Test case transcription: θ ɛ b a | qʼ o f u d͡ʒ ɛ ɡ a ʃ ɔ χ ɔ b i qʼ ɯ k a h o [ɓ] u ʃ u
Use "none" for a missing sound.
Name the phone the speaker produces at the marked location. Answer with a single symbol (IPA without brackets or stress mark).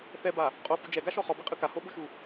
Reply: ɓ